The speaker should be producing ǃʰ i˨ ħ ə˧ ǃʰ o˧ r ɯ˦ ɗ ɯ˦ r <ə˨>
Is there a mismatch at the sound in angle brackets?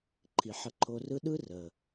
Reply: no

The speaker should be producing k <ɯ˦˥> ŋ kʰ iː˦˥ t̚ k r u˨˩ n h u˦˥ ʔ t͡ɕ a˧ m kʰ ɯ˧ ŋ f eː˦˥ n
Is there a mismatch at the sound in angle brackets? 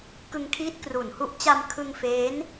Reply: yes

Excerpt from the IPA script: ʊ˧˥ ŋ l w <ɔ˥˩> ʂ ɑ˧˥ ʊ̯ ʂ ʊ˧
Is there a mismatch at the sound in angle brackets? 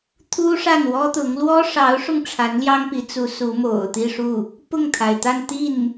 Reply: yes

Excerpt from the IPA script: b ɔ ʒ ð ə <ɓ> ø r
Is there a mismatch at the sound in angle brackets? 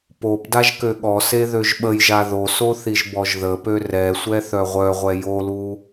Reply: yes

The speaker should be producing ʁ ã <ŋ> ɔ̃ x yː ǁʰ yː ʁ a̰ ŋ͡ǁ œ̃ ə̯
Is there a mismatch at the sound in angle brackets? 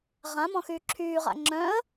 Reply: yes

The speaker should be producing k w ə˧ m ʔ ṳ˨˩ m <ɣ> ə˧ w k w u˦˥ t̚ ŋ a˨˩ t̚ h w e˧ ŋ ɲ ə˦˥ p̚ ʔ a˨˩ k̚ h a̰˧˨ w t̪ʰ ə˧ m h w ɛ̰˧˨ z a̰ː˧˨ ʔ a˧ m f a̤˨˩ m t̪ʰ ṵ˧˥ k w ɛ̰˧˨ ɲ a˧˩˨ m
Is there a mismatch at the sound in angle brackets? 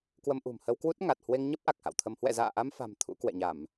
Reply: yes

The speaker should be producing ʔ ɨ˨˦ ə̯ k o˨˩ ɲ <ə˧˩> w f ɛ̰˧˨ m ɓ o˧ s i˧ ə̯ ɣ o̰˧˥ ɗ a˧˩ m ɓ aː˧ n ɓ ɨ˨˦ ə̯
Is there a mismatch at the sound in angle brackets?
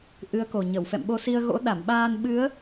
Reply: no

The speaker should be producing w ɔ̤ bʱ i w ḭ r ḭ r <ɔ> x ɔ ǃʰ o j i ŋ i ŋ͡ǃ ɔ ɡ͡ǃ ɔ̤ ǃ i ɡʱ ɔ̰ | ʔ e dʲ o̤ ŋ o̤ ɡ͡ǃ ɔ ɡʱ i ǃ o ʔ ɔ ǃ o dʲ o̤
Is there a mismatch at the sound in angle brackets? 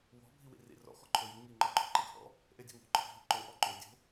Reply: yes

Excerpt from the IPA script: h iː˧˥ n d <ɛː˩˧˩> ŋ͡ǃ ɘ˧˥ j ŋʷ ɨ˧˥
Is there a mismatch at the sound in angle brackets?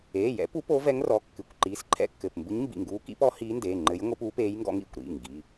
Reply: yes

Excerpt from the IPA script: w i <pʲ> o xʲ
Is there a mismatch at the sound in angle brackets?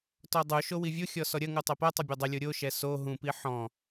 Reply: yes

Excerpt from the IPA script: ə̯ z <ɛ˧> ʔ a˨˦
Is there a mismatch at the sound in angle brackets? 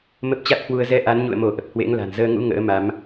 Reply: no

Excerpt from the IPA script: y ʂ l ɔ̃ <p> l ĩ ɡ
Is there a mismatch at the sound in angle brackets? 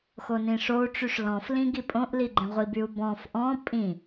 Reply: yes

